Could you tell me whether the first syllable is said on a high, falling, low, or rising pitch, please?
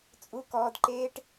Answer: high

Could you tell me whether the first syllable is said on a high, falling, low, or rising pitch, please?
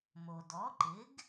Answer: low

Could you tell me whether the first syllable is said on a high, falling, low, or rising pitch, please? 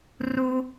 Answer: high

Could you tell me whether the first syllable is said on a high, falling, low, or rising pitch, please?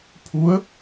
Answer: rising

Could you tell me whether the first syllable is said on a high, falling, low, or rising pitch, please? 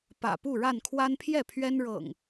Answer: low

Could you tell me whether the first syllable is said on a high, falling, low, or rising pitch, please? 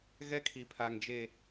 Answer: high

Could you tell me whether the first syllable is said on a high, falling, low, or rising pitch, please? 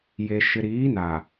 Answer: low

